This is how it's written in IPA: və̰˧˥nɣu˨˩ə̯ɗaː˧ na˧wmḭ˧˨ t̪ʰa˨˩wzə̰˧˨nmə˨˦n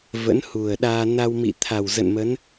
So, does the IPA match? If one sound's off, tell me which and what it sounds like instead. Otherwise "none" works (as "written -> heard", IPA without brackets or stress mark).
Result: ɣ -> h